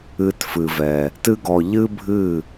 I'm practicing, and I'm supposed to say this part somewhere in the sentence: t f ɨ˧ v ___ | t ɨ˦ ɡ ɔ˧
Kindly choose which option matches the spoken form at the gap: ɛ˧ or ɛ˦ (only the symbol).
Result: ɛ˧